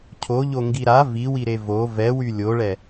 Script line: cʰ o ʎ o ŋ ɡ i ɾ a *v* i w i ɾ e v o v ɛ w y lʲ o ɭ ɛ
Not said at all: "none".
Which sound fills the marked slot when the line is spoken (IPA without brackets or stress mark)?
v